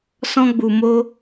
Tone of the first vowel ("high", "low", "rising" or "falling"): high